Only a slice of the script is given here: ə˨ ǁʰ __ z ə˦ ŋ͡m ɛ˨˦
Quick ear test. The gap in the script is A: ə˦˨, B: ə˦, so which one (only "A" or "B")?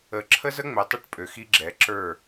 B